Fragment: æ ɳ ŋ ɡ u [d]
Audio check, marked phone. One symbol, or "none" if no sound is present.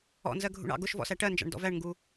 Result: none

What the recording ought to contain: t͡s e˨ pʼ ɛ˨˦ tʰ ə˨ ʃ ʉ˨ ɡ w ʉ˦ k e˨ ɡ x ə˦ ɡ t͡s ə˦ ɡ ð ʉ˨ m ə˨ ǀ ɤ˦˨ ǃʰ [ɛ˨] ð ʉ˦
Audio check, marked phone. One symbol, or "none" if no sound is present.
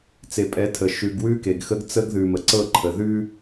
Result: ə˨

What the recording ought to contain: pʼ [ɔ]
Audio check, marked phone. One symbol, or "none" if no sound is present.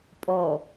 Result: ɔ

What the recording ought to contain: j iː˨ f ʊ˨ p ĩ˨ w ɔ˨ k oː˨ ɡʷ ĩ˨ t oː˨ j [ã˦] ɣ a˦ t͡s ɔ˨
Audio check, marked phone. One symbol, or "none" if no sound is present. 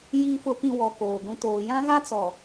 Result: ã˦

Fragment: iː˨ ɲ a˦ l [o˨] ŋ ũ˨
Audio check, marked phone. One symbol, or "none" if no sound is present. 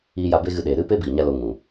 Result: o˧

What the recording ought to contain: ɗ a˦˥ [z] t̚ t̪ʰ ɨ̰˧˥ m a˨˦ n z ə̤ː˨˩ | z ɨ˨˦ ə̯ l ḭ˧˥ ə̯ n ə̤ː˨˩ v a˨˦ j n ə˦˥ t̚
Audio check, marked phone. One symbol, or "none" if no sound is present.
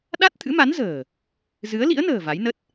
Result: none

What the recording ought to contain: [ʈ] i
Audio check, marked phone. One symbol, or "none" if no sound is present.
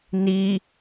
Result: n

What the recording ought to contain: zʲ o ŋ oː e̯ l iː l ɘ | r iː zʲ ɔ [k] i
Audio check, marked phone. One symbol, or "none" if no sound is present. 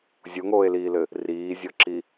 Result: ǁ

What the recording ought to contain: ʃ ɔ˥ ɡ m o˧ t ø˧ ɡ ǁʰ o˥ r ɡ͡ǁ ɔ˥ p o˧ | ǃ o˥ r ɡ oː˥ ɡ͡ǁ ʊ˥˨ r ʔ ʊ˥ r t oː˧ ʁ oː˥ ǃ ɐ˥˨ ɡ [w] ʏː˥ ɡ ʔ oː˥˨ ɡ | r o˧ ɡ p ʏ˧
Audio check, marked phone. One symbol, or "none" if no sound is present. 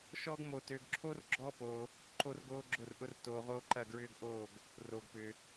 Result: ɹ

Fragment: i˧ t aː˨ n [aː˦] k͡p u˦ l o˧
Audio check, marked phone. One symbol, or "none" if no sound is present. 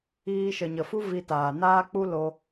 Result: aː˦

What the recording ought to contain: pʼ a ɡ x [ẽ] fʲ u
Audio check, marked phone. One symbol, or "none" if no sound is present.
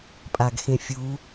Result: ẽ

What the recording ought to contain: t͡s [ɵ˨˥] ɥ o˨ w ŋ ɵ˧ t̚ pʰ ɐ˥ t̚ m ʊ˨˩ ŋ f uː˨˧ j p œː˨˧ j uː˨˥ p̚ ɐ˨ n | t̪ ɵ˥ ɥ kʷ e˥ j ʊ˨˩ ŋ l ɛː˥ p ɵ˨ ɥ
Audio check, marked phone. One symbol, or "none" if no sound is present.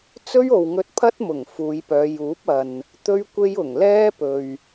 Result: ɵ˥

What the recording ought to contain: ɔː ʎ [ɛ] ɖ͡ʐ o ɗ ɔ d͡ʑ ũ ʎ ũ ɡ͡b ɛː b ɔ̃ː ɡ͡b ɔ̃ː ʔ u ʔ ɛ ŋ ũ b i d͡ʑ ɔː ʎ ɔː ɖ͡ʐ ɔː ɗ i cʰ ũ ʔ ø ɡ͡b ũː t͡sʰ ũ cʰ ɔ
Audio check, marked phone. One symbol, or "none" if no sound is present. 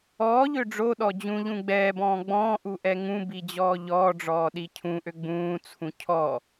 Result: ø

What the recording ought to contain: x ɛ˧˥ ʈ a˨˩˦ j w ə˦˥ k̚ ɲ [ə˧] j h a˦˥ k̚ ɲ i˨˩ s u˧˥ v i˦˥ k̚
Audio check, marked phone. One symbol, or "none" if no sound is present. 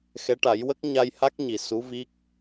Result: a˧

